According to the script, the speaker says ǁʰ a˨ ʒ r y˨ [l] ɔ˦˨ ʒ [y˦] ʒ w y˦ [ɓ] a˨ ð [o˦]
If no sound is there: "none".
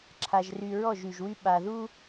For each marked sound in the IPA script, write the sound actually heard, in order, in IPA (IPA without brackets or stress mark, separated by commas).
ɹ, y˨, ɓ, u˦